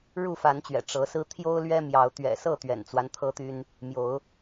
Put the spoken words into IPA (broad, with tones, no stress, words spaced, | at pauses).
ɻu˥˨fa˨˦nt͡ɕɥɛ̰˨˩ ʈ͡ʂɤ˨˦sɹ̩˦ t̪ʰjo˦ʊ̯lɥɛ˦mjɑ˨˦ʊ̯ t̪ɥɛ̰˨˩sɤ˥˨ t̪ɥɛ̰˨˩nt͡swa˦n t̪ʰɤ˦t̪y˦n | mjo˨˦ʊ̯